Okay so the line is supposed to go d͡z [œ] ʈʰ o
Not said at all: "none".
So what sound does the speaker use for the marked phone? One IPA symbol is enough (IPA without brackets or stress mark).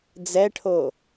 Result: ɛ